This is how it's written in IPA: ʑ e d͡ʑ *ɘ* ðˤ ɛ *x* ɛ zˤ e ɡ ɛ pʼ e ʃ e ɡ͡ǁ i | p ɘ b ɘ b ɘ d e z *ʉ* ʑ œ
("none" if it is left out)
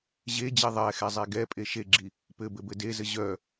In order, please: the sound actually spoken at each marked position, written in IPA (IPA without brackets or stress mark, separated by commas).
e, x, ɘ